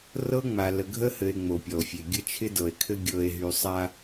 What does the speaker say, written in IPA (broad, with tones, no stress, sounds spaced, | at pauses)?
r ɤ˦ ŋ͡m a˨ l ə˨ ɡʱ ə˦ h ɘ˨ e̯ ŋ͡m o˨ pʲ ɔ˨ o̯ fʲ e˨ ɡʲ ə˦ t͡ʃʰ ɪ˦ d ɤ˨ e̯ kʰ ɘ˦ ɡʲ ɤ˨ e̯ ɦ y˨ sˤ a˦